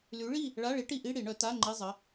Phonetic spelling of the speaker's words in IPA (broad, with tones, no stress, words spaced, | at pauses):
ly˨˥ɭi˥˨ | ɭa˧˥˧ɭi˨˥ʈi˧ʔi˧˥˧ ɽi˨˩˦ɳœ˨˩˦ ta˧˥˧ ŋ͡ǃi˧˥˧ zˤə˩˧˩